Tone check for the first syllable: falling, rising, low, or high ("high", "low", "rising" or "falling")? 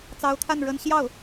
rising